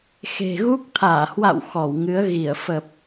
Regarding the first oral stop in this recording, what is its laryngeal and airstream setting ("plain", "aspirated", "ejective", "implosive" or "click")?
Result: plain